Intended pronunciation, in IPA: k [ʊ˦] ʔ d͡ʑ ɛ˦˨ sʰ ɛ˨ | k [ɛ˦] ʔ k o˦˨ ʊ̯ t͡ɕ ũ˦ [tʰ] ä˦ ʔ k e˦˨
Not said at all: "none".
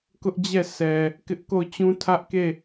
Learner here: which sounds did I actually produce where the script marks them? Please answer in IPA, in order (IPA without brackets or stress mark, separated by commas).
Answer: ʊ˦, ɪ˦, tʰ